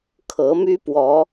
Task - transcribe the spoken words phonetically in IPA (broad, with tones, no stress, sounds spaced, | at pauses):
kʰ ɤ˨˦ m y˦ p w ɔ˨˦